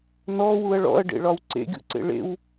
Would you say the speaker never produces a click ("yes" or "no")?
no